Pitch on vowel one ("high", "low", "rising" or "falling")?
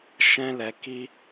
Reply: high